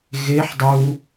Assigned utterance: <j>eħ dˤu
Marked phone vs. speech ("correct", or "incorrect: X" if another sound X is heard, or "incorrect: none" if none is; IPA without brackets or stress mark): incorrect: ɣ